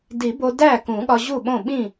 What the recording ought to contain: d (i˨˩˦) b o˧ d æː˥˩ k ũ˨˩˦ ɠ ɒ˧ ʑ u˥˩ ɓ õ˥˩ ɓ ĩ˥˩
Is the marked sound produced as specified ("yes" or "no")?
yes